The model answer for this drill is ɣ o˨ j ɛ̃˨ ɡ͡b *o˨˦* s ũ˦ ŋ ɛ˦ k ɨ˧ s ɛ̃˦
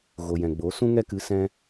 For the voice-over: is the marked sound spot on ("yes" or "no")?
yes